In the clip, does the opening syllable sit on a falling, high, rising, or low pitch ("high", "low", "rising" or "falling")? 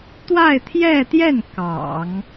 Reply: falling